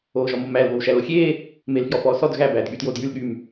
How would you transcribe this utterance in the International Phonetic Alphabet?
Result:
oː ʒ ɔ m o m æ l β o w ʃ æ l o xʲ eː | m eː l f j ɔ f ɔː s ɔ d ɣ æ b æː d ɠ y t j oː d j y l ɠ y m

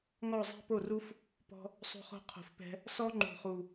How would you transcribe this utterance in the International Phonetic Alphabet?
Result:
ŋ ɔ˦˨ zˤ ɛ̤˦ p o˦˨ r u˦ f | p ɔ̤˧ | sˤ o̤˧ χ o̤˧ qʰ o̤˨ f p ɛ̤˧ | s ɔ˦ ŋ͡ǃ ṳ˨ χ u˨

